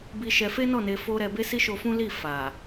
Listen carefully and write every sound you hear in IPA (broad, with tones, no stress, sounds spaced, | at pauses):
b i˧ ʃ ɛ˧ f e˦ n ɔ˦˨ n e˧ f o˦ ɾ ɛ˧ b e˦ s i˦ ʃ o˧ f ũ˦ l i˦˨ f a˨